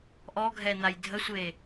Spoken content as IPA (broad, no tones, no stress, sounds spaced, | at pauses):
ʔ ɔ ɡʱ ɛ n̪ a j dʱ ə sʷ e